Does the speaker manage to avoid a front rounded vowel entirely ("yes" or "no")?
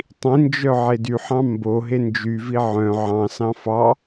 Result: no